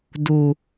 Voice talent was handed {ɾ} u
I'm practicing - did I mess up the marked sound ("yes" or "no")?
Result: yes